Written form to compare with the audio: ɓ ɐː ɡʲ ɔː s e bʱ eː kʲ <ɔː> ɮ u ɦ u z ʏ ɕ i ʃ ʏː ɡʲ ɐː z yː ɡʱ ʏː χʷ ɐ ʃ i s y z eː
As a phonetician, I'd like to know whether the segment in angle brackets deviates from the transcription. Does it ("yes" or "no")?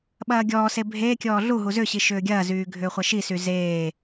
no